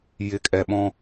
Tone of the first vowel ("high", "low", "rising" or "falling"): low